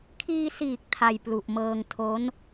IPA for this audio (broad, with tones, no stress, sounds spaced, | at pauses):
kʰ iː˧ s iː˨˩ k̚ tʰ a˧ j p l u˨˩ ʔ m ɤː˧ ŋ tʰ o˦˥ n